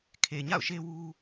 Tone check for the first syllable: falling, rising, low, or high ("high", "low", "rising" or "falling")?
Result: low